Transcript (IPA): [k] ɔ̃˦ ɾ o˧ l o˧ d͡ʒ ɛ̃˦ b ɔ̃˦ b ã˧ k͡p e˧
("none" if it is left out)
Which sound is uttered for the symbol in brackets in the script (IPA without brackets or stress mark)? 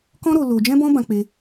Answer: k